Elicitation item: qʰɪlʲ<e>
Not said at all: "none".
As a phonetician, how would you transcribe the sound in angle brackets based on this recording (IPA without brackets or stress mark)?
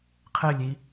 i